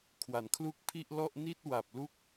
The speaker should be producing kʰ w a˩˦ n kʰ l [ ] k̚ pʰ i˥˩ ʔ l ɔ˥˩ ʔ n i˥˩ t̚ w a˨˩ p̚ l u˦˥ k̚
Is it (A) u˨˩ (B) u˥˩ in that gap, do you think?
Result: B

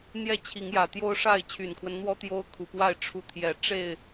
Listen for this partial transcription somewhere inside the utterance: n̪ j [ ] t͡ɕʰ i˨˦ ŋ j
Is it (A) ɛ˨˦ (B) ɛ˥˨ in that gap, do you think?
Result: B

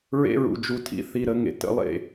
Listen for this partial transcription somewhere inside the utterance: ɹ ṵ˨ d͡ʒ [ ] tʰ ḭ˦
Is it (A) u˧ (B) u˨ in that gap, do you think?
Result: A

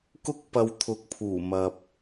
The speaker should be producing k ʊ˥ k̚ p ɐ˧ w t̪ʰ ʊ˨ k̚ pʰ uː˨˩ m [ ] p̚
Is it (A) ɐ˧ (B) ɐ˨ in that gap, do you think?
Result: B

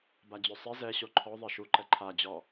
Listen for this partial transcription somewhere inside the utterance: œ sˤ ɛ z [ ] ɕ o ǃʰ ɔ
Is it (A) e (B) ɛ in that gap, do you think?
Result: B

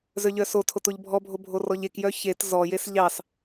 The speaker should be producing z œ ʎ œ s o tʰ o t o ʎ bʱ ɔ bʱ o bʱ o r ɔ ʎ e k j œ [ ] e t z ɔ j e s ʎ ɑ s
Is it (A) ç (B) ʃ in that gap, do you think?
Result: A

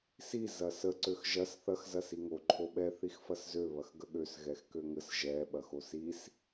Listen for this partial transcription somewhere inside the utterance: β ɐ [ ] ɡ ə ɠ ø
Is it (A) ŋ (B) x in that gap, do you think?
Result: B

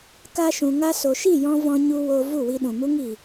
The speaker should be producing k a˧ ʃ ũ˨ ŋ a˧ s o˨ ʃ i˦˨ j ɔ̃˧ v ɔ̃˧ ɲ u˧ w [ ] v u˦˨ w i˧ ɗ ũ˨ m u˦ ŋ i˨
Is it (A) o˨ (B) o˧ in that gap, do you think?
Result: B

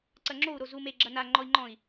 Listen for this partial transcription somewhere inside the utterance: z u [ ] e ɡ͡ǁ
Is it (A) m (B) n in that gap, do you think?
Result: A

